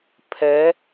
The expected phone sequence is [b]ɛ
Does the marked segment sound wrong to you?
yes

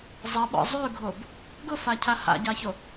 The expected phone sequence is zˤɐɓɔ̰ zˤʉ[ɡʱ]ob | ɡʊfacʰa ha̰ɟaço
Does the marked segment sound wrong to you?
no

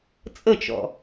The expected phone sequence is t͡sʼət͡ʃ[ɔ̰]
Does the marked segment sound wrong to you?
no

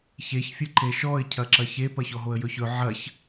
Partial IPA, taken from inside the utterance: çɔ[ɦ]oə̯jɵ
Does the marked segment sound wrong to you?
no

